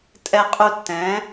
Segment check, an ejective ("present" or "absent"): present